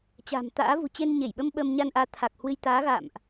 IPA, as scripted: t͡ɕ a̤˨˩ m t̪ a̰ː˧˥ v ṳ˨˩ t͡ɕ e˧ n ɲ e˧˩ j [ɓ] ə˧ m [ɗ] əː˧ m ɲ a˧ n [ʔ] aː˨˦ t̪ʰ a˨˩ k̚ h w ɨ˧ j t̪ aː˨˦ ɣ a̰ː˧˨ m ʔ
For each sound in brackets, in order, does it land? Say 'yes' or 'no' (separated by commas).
yes, no, yes